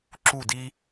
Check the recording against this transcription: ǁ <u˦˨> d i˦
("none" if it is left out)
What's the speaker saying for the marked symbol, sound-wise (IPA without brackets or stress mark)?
u˦˨